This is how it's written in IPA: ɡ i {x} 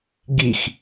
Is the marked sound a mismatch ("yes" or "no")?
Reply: no